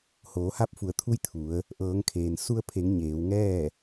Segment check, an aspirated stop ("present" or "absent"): present